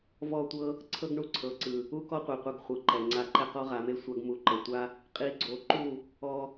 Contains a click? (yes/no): yes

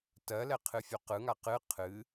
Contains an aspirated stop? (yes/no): yes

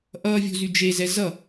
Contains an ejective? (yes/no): no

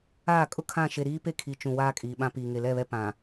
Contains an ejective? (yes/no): yes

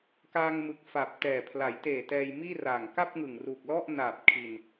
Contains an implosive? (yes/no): no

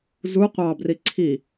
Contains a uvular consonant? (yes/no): yes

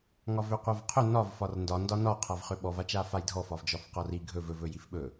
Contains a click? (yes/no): no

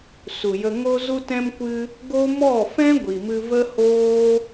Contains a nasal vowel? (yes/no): yes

